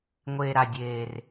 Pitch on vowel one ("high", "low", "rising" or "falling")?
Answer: low